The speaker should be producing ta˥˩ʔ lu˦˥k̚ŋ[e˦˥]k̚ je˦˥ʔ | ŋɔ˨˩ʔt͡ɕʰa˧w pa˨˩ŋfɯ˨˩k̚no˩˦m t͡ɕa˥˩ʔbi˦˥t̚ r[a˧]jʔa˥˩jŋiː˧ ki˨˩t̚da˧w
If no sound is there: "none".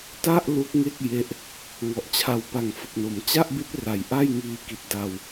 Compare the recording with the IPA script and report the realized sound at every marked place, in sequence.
e˥˩, a˨˩

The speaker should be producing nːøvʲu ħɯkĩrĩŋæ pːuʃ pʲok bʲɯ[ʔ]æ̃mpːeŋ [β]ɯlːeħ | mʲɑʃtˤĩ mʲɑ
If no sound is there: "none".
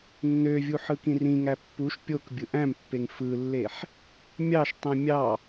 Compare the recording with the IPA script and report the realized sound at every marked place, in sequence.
ʔ, f

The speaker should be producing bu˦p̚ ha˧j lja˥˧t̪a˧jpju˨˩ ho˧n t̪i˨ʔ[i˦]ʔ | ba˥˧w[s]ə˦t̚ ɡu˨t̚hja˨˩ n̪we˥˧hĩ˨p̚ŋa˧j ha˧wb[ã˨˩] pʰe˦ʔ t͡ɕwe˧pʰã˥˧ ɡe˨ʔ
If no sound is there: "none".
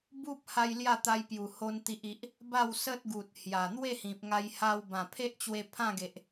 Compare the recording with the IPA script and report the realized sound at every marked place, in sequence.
i˨, s, ã˨˩

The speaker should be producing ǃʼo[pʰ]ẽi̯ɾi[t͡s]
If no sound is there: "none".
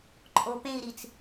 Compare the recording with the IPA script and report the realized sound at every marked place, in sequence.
p, t͡s

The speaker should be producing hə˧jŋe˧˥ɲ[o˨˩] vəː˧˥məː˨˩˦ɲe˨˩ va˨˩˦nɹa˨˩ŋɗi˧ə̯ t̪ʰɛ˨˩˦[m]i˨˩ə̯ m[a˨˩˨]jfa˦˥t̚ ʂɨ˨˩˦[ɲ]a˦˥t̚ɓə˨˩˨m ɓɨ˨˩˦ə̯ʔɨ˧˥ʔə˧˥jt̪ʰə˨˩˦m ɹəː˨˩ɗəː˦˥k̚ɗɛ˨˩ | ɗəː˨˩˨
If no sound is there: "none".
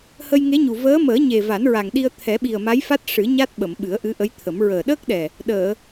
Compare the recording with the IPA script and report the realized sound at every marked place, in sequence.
u˨˩, ɓ, a˧˥, ɲ

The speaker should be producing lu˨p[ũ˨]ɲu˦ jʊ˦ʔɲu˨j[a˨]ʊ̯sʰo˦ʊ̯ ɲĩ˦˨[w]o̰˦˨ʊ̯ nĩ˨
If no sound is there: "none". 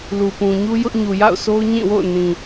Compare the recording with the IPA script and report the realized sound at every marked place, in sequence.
ũ˨, a̰˦˨, w

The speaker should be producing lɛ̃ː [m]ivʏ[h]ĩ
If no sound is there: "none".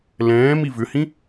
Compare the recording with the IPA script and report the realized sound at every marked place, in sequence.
m, h

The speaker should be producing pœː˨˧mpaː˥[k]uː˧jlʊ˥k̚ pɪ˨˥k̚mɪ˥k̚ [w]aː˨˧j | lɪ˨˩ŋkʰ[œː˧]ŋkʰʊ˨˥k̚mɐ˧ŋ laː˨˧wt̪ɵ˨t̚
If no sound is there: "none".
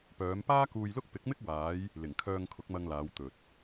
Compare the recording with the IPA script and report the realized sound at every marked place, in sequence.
k, w, œː˧

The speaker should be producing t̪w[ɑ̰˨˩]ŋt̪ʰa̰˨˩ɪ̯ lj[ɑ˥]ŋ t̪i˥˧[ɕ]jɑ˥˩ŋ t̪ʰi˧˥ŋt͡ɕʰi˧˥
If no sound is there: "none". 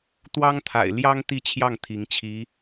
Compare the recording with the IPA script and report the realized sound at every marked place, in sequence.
ɑ˥, ɑ˥, t͡ɕʰ

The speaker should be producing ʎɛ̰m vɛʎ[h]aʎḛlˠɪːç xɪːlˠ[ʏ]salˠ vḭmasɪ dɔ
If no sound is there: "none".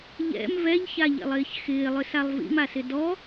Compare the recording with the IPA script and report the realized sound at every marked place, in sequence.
ç, ʏ

